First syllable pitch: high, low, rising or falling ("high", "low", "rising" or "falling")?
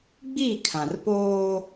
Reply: falling